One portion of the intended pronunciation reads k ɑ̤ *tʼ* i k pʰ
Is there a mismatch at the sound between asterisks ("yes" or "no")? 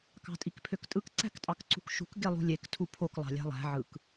no